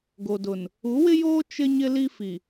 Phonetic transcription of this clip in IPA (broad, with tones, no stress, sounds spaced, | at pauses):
ɡ o˨ d ʊ˨ n | u˨˦ w ɪ˦ j oː˦ t͡ʃ ɪ˦ ɲ ɪ˦ l i˦ f i˨